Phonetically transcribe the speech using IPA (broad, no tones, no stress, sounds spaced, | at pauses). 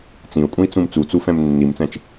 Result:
t͡s ĩ u̯ kʼ ũ i̯ t͡s ũ m t͡s u t͡s u f ɛ̃ m nː i m t͡s ɛ̃ t͡ʃ